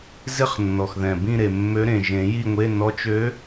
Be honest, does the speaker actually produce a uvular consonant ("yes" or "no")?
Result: yes